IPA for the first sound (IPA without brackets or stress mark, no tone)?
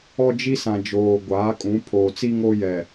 ɔ